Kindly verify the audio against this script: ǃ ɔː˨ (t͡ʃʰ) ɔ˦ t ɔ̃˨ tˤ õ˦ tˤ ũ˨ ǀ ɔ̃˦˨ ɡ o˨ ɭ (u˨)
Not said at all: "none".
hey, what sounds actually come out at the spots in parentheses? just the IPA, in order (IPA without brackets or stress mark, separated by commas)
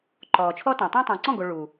t͡ʃʰ, u˨